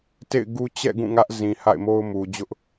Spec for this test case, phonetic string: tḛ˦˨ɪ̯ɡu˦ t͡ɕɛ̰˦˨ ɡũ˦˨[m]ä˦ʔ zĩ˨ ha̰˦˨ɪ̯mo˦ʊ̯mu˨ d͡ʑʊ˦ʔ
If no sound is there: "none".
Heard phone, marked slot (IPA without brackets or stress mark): ŋ